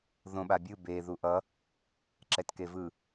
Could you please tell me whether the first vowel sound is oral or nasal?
nasal